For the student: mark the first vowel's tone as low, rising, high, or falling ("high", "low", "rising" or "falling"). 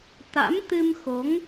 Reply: rising